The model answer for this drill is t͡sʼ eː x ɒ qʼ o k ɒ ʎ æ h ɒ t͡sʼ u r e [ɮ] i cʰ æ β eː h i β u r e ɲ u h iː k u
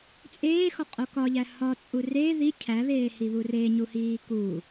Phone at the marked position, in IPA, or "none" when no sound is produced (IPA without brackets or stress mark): ð